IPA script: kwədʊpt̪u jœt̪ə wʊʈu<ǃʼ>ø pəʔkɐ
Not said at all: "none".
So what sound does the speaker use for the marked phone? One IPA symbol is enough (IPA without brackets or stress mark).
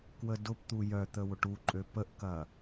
ǃʼ